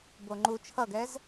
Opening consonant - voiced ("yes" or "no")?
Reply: yes